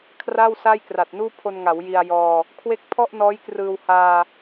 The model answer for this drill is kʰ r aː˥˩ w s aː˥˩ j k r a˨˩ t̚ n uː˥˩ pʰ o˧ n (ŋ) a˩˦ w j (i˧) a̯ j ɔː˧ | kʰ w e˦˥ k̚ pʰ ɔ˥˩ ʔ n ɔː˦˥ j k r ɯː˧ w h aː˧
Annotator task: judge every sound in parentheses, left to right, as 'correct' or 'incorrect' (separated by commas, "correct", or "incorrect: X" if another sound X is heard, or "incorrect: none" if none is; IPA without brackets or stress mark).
correct, correct